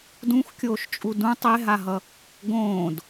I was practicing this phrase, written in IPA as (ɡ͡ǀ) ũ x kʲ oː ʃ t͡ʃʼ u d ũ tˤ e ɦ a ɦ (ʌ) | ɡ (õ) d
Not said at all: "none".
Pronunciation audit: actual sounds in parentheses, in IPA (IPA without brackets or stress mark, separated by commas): d, ʌ, õː